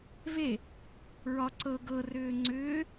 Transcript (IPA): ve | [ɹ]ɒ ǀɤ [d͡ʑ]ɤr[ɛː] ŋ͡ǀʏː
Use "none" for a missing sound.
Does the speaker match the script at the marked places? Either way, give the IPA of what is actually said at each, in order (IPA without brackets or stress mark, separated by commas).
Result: ɹ, ɡ, ʏː